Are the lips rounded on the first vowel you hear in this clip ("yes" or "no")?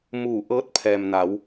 yes